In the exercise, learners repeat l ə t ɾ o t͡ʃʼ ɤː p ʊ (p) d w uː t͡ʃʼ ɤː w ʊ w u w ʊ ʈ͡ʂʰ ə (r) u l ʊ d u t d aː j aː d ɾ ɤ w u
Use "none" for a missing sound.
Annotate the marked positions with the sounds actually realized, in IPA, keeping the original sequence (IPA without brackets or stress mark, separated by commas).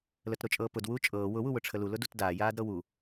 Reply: none, l